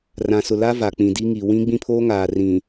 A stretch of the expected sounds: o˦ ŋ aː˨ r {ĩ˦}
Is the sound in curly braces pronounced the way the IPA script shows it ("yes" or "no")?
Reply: no